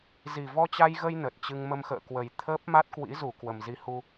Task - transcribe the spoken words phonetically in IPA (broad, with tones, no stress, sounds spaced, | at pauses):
z i˨˩ v ɔ˧ t͡ɕ a˧ j ɣ ə˧ j n ə˨˩ t̚ t͡ɕ ɨ˧ ŋ m ə˧ m x ə̰ː˧˨ k w ə˨˩ j t̪ʰ əː˦˥ p̚ m a˦˥ t̚ k w ḭ˧˥ z u˧˩ k w ə˨˩ m z i˧ h u˧